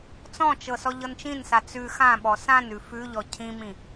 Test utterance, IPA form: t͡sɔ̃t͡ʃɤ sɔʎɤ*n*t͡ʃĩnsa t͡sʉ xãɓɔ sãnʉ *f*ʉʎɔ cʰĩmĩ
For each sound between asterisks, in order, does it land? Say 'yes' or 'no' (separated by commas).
yes, yes